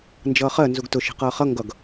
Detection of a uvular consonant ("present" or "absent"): present